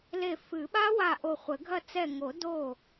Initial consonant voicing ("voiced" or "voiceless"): voiced